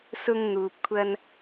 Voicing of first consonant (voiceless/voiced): voiceless